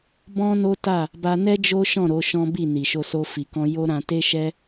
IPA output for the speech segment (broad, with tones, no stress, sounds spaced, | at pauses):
b ɔ̃˦ n o˦ t a˦˨ | b a˧ n ɛ˦ d͡ʒ o˦ ʃ ɔ̃˦˨ ɾ o˨˦ ʃ ɔ̃˦ b i˦˨ n i˨ ʃ o˧ s o˧ f i˨ k ɔ̃˧ j o˦ ɾ ã˧ t e˦ ʃ ɛ˦